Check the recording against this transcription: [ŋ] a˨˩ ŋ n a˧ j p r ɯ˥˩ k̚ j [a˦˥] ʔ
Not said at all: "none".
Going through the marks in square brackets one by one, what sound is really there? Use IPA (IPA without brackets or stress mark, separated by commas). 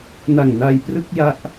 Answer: n, a˦˥